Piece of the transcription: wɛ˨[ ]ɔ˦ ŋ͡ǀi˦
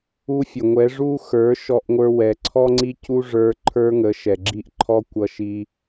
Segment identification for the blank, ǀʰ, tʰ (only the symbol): ǀʰ